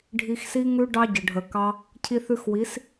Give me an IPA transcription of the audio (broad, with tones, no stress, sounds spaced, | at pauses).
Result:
ɖʱ i˧ x s i˦ ŋ ʉ˦ ɖ ɑ˦ ɟ ə˨ ɖʱ ə˨ k ɑ˦ | cʰ i˧ θ ʉ˧ x w i˨˦ s